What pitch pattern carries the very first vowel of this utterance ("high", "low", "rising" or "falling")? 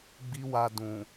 high